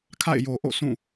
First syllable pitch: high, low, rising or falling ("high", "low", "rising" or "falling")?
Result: falling